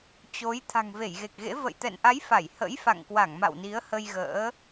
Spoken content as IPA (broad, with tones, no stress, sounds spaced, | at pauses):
t͡ɕ o˨˦ j t̪ʰ a̤˨˩ ŋ v e˧˩ j ɣ e˨˩ k̚ ɣ ḛ˧˥ v ə̰˧˨ j t̪ ɛ̰˧˨ n ʔ a˨˦ j f a˧˩ j h ə̰˧˥ j f a̰˧˨ ŋ k w a˧˩ ŋ m a̰˧˨ w n i˨˦ ə̯ h ə˧ j ɣ ə̰ː˧˥